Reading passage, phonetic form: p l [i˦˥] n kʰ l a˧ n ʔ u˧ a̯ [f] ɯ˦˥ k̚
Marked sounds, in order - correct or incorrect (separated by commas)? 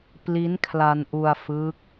correct, correct